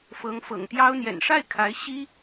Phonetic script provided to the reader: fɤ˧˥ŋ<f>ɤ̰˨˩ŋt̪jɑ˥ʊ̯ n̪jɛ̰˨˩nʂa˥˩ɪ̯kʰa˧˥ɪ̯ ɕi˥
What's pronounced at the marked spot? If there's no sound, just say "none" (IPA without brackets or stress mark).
f